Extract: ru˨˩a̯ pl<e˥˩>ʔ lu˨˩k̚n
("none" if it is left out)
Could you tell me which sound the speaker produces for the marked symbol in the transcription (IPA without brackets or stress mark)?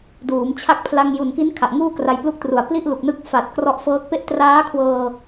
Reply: i˥˩